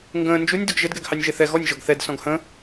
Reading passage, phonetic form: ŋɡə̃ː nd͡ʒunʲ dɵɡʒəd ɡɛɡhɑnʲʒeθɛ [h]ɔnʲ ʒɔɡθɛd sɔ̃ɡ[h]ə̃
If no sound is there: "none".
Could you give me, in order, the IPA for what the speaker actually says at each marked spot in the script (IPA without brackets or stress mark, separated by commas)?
ɣ, h